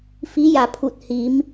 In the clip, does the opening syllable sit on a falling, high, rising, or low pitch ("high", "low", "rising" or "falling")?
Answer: rising